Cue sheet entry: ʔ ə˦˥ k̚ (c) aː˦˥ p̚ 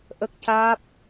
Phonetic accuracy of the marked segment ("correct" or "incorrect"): correct